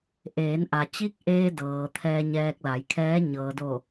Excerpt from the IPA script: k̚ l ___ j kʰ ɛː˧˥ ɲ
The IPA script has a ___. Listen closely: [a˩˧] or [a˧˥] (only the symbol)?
a˩˧